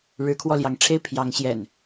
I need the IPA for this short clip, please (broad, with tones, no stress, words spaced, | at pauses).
ɻɻ̩˨˦kʰwɔ˧ljɑ˨˦ŋʈ͡ʂʰe˦ɪ̯ pʰjɑ˨˦ŋɕjɛ̰˨˩n